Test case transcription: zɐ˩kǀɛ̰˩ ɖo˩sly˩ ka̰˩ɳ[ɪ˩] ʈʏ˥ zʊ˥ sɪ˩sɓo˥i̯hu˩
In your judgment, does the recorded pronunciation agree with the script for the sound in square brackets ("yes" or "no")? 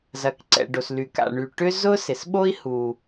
no